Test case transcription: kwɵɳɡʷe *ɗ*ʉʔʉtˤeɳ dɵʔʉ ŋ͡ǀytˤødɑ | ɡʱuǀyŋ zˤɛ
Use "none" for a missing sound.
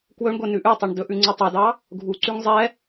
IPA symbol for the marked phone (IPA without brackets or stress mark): n